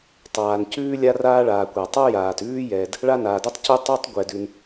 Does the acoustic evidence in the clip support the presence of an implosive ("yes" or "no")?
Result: no